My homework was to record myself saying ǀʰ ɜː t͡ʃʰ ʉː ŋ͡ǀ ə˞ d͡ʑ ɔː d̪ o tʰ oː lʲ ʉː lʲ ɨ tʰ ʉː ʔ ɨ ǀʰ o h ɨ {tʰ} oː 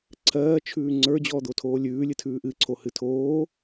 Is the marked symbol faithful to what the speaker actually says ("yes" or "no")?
yes